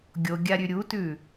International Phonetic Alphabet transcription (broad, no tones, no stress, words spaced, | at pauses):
ɡʲoɡʲaɾʲʉ ɾʲutʉ